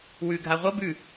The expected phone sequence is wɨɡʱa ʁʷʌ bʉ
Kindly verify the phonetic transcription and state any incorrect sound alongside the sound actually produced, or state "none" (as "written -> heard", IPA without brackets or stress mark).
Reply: ɨ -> ʉ